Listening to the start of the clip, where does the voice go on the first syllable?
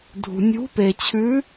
low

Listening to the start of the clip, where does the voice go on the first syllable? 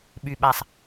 low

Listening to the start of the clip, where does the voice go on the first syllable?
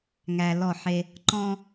low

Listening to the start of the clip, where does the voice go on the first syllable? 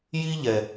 high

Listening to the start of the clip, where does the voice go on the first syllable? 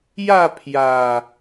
falling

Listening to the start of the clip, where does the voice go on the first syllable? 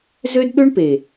high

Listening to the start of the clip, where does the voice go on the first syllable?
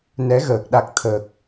rising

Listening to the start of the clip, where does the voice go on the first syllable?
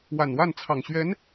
low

